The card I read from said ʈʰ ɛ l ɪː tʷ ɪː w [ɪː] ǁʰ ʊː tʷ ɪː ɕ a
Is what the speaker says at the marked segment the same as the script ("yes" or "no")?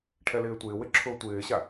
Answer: no